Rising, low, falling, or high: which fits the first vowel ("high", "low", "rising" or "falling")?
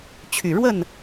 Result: low